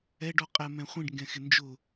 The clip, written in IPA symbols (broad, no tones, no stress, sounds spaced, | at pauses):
ɛ ɖ ɔ qʼ ɛ m ɛ̃ χʷ ĩ ɖ ŋ ɡ ɛ̃ x ɪ n d͡ʒ ʊ